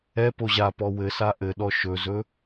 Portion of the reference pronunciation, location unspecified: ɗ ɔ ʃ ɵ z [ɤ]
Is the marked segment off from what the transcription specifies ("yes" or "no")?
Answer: yes